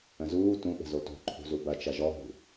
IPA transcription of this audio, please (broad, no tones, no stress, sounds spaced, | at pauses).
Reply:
ə̃ z uː t ũ ɓ ə̤ z o t o̤ ǃʰ ṳ z u b ɐ t͡ʃ ɐ ʒ ɔ ɦ ṳ